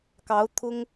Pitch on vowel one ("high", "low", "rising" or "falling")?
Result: rising